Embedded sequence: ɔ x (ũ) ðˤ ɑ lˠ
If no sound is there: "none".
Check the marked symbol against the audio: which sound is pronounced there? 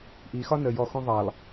ũ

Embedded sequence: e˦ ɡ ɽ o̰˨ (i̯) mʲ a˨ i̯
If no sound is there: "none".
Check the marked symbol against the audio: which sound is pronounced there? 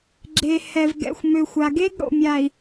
none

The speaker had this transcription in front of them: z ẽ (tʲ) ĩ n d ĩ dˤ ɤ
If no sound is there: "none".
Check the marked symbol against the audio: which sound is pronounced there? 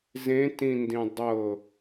t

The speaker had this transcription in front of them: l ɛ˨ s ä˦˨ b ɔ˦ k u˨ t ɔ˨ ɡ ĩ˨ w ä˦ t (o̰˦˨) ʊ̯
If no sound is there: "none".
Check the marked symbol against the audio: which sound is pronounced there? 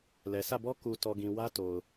o˨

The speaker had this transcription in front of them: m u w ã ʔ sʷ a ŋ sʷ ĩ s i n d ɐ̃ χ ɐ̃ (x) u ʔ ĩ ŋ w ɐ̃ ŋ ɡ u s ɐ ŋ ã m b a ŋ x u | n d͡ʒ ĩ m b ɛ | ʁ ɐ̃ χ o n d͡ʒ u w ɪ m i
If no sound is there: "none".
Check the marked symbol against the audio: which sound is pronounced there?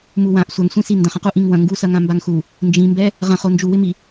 q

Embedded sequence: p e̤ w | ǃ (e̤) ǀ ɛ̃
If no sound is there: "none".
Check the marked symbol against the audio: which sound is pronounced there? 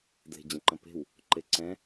e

